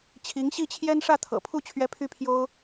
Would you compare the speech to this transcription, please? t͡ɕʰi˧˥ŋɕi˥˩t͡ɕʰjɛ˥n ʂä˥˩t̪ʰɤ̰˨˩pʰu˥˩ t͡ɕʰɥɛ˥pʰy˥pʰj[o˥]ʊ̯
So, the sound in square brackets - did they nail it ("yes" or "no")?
yes